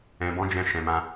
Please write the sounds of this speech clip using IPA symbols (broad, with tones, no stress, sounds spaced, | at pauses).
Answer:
ɛ̃˨ b ɔ̃˨˦ d͡ʒ ɛ̃˧ ʃ ɛ̃˨ m ã˧